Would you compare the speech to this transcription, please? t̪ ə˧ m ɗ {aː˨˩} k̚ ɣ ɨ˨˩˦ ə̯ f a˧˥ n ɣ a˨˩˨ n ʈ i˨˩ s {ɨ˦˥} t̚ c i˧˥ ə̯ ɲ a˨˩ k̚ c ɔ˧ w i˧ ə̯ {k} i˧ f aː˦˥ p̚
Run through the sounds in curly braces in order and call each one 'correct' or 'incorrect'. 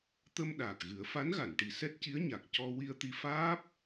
correct, incorrect: ɛ˦˥, incorrect: t̪

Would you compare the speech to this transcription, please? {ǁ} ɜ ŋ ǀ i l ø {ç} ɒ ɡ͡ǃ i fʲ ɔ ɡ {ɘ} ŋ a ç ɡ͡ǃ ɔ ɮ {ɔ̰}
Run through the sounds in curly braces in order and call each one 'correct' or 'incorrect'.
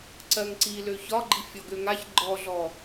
incorrect: ǀ, correct, incorrect: ø, incorrect: ɔ

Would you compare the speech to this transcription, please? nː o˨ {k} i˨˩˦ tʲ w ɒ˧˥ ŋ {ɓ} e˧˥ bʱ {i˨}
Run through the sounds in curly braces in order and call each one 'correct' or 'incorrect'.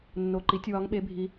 incorrect: ǃ, correct, incorrect: i˧˥

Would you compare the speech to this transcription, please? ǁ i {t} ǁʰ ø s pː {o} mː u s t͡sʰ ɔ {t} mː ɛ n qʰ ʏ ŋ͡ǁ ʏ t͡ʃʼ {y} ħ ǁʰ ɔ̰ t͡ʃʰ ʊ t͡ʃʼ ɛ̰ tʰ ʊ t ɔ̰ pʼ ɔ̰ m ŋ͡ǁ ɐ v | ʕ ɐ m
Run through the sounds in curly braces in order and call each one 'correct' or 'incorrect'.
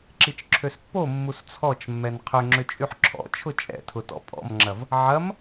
incorrect: t͡ʃ, correct, incorrect: t͡ʃ, correct

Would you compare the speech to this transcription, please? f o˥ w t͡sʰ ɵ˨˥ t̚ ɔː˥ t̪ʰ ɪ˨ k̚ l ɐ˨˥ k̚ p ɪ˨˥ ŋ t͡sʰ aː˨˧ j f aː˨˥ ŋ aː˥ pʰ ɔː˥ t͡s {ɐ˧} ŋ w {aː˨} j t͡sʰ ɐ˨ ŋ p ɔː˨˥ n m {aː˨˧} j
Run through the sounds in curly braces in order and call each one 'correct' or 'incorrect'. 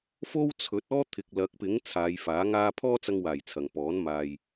correct, incorrect: aː˨˩, incorrect: aː˨

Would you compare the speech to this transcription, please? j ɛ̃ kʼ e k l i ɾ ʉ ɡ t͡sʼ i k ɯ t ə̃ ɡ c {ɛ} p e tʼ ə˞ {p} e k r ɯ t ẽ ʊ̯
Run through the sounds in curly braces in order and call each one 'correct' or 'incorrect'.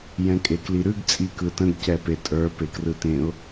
correct, correct

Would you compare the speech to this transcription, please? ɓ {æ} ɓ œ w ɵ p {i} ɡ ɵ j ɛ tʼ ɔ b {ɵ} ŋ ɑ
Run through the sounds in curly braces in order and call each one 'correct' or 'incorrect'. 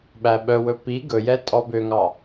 correct, correct, incorrect: ø

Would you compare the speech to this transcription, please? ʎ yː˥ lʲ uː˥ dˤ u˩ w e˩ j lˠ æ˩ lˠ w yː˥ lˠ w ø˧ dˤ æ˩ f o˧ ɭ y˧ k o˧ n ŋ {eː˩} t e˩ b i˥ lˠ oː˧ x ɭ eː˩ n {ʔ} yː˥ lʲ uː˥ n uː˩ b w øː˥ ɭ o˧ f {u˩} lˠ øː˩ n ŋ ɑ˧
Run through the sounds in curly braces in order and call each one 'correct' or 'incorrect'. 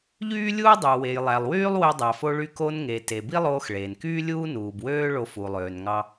incorrect: e˩, incorrect: k, correct

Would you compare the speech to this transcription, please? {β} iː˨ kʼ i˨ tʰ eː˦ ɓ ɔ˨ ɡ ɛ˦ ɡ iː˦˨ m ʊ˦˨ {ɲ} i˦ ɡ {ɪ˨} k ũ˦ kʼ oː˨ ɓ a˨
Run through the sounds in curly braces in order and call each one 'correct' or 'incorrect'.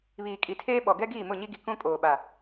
correct, correct, incorrect: i˨

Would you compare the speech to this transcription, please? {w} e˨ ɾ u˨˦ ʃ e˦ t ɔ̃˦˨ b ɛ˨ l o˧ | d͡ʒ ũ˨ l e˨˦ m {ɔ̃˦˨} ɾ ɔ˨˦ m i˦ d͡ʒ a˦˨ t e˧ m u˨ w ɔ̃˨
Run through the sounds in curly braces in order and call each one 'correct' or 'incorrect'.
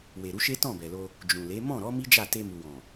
correct, correct

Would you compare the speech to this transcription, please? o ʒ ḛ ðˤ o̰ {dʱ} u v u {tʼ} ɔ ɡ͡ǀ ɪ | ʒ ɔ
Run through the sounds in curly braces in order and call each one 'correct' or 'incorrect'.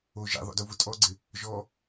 incorrect: d, correct

